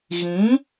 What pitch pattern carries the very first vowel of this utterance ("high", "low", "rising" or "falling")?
rising